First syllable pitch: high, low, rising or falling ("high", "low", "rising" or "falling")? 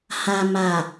low